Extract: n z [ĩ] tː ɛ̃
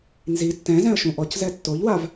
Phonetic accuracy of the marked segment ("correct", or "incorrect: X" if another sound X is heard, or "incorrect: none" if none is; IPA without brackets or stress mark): incorrect: i